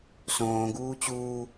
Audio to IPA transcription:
s õː ɡ uː t͡ɕ uː

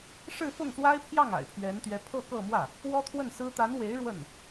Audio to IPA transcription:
ʂ ɻ̩˥˧ f ʊ˥˩ ŋ s w a˥ ɪ̯ pʰ j ɑ˥˩ ŋ a̰˨˩ ɪ̯ pʰ ɥ ɛ˧˥ n t̪ ɥ ɛ˧˥ pʰ ɤ˥˧ k ɤ˥˧ m w ä˥˩ | w ɔ˥ t̪ʰ w ə˥˩ n s ɹ̩˥ t̪ a˧˥ n w e˧˥ ɪ̯ ɻ w ə˥˩ n

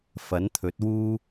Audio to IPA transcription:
f ɐ˨˥ n t̪ʰ ɵ˨˥ t̚ w uː˥

